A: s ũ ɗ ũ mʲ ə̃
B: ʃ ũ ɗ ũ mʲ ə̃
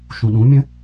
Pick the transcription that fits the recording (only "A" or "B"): B